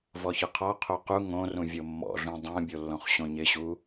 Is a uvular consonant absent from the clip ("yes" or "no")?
no